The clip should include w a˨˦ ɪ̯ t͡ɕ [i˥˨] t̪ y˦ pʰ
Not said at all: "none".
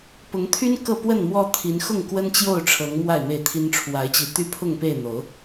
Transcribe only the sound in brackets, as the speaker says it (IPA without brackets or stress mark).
i˨˦